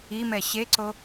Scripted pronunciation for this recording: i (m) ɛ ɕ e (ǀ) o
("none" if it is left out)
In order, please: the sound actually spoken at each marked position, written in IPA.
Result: m, ǀ

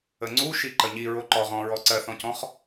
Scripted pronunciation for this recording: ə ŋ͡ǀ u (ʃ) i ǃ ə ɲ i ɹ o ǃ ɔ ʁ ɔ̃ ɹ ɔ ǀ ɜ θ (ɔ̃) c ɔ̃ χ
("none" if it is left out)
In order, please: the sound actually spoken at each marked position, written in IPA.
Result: ʃ, ɔ̃

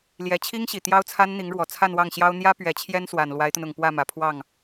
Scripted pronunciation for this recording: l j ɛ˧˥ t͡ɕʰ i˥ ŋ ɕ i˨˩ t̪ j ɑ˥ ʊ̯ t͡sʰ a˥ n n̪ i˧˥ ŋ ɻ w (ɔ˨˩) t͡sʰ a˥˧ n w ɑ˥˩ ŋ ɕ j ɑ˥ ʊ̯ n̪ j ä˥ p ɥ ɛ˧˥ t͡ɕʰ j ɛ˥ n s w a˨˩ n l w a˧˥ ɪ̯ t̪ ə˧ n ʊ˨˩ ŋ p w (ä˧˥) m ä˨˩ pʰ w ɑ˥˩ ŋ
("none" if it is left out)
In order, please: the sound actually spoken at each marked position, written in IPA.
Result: ɔ˨˩, ä˥˩

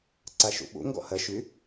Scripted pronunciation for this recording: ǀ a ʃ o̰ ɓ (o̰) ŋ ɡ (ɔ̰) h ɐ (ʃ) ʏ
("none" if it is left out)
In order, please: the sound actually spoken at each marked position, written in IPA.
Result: o̰, ɔ̰, ʃ

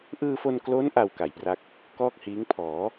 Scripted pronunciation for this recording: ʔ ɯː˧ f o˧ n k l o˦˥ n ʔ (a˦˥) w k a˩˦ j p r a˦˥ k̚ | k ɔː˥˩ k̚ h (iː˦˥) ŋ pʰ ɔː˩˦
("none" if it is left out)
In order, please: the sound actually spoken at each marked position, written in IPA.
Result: a˧, iː˦˥

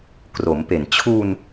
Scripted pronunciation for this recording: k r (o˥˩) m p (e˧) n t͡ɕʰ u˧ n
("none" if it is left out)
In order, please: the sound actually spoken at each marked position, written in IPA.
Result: o˩˦, e˨˩

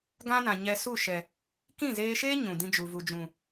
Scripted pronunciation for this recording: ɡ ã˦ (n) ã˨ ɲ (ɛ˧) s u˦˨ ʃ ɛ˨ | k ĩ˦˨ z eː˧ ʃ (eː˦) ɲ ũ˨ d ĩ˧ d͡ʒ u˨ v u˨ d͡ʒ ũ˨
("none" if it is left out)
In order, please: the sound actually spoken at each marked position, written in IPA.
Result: n, ɛ˧, eː˦

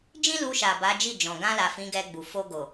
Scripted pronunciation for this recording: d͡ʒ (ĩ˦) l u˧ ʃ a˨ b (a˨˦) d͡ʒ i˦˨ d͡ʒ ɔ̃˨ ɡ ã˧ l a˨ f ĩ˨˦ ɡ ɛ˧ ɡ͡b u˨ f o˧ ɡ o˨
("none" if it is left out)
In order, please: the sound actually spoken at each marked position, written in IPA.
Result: ĩ˦, a˨˦

